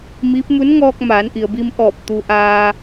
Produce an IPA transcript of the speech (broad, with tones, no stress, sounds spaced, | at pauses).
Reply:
m i˧˥ p̚ m u˧˥ n ŋ ɔː˧ k̚ m aː˩˧ n ʔ i˩ ə̯ b i˧ m ʔ ɔː˧˩ p̚ t̪ u˧ ʔ aː˧